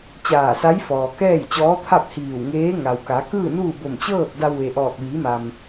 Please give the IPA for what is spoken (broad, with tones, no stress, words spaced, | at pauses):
t͡ɕaː˧˩sa˧˥jfɔː˩ kɛː˥˨jt͡ɕɔː˧˥t̪ʰa˥˨p̚ hiː˧˩wŋeː˧˥ ŋa˩wka˩˧ kɯː˥˨nuː˥˨ bo˧˩mt͡ɕɤː˥˨k̚ da˧wʋe˩ ʔɔː˧˩k̚ʋiː˩˧ma˩m